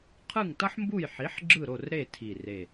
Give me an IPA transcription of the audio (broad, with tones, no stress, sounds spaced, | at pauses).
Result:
qʰ ɯ˦˨ ŋ t ʌ˦ ħ m b u˦˨ j ħ i˨˥ ħ ɡ͡ǁ ɯ˦˨ ɾ o˦˨ r ɾ e˦˨ tʰ i˦˨ r e˦˨